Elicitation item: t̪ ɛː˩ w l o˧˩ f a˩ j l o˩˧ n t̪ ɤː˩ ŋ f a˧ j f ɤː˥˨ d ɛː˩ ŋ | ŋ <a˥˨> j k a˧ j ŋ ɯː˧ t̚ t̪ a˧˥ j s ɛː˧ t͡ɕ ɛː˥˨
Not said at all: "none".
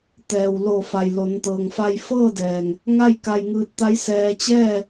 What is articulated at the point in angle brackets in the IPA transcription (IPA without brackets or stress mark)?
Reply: a˥˨